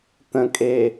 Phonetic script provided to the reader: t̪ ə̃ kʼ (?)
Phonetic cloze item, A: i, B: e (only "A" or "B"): B